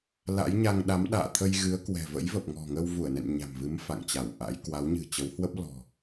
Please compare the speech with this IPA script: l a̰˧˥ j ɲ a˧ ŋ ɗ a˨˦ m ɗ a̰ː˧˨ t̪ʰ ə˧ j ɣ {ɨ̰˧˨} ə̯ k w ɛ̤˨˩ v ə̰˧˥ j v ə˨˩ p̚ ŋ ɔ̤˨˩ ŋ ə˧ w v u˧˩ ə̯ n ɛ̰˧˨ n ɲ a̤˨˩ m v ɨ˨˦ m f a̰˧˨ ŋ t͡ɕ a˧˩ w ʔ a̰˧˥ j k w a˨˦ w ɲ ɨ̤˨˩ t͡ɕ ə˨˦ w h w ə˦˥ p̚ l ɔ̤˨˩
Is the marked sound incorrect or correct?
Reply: incorrect: ɨ˨˦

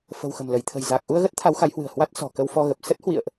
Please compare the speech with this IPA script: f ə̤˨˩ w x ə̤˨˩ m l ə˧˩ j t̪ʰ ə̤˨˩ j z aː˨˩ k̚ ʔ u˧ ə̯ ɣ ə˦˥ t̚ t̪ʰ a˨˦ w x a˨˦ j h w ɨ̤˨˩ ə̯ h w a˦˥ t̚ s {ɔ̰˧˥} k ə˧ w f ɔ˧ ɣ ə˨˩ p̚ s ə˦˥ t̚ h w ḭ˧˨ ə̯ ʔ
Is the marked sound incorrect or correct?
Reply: incorrect: ɔ̤˨˩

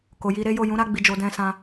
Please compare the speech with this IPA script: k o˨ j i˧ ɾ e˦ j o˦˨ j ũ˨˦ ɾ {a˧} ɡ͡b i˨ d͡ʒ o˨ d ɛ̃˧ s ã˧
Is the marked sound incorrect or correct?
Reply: correct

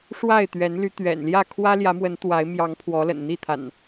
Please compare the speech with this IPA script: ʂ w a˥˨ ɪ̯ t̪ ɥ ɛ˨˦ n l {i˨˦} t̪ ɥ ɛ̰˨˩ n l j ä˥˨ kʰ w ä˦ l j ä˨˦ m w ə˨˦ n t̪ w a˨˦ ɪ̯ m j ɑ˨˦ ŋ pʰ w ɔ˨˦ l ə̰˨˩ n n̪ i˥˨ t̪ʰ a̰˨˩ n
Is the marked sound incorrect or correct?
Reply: incorrect: y˨˦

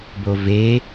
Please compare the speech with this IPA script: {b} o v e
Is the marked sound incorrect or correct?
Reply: correct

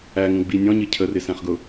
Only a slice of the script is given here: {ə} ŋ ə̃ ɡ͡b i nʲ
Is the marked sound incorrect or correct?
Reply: incorrect: æ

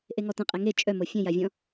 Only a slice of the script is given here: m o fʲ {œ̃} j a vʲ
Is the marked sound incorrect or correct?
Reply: correct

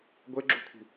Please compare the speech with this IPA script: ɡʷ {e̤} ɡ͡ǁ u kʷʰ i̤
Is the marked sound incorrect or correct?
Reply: incorrect: e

